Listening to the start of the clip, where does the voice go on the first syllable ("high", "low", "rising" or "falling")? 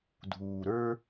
low